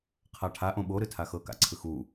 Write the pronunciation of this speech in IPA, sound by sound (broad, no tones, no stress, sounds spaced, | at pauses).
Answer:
qʰ a ʈʰ a ʔ õ ɓ o ɾ ɯ tʰ a x ɤ k a̰ ǀʰ ɯ x u